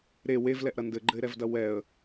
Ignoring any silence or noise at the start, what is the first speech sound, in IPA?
ɾ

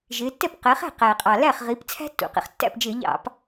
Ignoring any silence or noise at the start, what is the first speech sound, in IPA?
ʒ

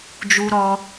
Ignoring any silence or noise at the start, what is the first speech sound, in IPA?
d͡ʒ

